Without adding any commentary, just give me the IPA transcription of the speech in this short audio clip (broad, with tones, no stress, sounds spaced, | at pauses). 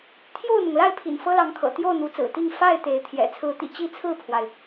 t̪ʰ j o˥˨ ʊ̯ n̪ ʊ˩ ŋ l a˥˨ ɪ̯ pʰ ḭ˨˩ n f ɤ˦ l ɑ˨˦ ŋ kʰ ɤ̰˨˩ t̪ j o˥˨ ʊ̯ n̪ u˨˦ t͡s ɹ̩˨˩ t̪ i˥˨ ŋ f a˥˨ ɪ̯ t̪ e˨˦ ɪ̯ t̪ʰ j ɛ̰˨˩ t͡sʰ ɹ̩˨˦ t̪ ḭ˨˩ t͡ɕ i˥˨ t͡sʰ ɹ̩˥˨ pʰ w a˩ ɪ̯